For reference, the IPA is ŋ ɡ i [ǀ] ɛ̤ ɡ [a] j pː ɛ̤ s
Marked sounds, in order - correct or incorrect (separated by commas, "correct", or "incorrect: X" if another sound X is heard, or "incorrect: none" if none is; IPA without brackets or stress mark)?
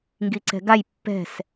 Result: correct, correct